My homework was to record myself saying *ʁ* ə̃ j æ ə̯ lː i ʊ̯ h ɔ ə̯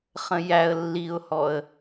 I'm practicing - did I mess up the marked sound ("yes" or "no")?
yes